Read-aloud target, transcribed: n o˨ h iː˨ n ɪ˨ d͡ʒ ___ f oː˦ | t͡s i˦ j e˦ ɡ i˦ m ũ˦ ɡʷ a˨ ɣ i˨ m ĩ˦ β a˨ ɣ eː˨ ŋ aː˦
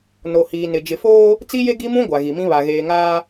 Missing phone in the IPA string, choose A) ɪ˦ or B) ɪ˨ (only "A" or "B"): B